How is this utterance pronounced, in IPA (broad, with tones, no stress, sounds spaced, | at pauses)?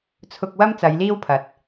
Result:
t͡sʰ ʊ˧ k̚ w ɐ˥ m t͡s ɐ˨˧ j l iː˥ w pʰ ɐ˨˥ t̚